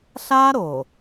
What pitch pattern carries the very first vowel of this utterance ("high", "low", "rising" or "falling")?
high